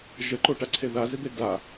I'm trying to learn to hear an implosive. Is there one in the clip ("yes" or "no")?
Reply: no